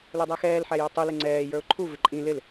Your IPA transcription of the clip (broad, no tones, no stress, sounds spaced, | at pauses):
l ə˞ dˤ ɛ x ɛː l ħ æ j ʌ tˤ u l ɪ ŋ͡ǀ ɛː j ə˞ ʊ̯ ǃʰ u v ɪ ǃʼ ĩ l ɪ l